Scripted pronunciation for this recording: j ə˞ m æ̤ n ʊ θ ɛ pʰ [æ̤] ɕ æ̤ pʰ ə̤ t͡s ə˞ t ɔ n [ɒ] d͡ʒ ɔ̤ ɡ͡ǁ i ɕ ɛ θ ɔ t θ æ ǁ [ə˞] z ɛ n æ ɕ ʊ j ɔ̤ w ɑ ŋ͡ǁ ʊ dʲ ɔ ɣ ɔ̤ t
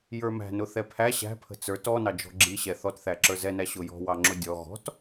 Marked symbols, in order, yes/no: no, no, yes

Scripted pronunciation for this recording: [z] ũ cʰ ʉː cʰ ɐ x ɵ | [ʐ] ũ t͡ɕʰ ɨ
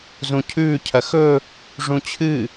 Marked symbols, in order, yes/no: yes, yes

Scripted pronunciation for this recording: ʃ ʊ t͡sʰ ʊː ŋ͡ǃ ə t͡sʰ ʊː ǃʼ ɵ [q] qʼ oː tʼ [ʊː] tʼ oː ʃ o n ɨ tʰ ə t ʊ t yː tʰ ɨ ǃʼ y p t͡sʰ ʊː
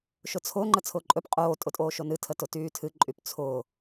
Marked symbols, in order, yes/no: no, no

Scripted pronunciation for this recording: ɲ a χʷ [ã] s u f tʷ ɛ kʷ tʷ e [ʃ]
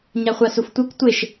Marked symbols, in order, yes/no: no, yes

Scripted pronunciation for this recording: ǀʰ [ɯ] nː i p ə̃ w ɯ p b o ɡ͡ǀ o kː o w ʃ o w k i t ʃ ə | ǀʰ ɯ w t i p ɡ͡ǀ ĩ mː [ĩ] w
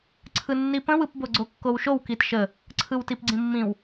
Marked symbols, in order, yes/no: yes, yes

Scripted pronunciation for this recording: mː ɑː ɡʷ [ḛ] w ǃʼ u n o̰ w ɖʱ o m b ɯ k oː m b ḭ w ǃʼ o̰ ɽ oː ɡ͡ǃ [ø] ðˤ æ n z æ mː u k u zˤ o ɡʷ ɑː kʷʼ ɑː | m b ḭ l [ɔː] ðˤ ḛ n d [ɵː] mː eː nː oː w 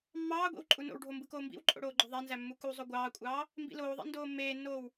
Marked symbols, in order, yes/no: no, yes, no, no

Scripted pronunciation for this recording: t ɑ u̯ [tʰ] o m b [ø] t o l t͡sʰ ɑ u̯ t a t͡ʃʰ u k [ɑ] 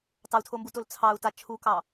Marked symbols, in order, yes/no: yes, no, yes

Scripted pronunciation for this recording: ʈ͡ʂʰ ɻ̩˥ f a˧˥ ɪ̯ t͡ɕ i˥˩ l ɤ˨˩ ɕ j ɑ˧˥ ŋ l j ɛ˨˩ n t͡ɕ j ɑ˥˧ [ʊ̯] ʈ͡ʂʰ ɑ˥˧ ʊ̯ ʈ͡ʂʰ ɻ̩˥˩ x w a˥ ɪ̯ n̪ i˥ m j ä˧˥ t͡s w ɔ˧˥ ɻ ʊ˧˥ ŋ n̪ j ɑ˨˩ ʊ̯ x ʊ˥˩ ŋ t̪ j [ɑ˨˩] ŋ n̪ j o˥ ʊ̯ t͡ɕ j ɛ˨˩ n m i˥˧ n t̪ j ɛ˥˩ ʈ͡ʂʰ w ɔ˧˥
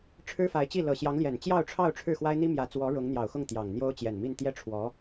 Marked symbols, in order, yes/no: yes, yes

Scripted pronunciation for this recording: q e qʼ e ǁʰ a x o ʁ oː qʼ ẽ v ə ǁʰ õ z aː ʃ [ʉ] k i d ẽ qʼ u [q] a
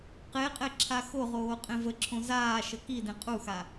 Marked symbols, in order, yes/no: no, no

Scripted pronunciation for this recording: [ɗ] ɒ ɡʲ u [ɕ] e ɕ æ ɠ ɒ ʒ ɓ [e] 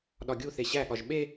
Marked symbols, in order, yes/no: yes, no, yes

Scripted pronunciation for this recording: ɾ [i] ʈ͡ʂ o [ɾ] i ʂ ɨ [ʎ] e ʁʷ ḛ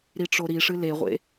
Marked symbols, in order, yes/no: yes, yes, no

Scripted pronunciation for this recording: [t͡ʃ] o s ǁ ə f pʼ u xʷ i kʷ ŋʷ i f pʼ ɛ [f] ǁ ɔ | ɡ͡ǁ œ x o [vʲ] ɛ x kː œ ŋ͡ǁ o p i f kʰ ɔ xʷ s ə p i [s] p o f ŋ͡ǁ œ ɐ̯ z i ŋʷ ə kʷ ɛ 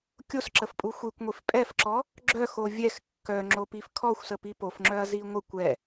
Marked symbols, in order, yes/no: no, yes, yes, no

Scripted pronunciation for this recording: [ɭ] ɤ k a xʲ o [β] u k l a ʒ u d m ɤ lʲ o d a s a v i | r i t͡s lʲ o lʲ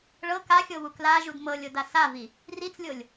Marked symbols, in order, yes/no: yes, yes

